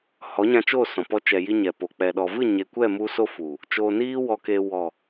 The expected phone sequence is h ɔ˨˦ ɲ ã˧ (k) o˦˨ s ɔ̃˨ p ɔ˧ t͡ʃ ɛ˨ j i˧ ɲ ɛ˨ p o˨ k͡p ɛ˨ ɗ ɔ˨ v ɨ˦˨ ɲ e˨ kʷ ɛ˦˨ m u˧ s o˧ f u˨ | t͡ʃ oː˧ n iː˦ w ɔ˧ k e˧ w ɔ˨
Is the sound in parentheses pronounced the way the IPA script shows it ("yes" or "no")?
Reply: no